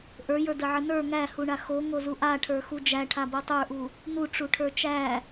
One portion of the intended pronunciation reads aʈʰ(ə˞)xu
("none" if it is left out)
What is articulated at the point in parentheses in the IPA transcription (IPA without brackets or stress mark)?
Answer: ə˞